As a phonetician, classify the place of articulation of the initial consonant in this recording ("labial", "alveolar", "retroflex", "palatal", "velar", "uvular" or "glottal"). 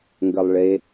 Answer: velar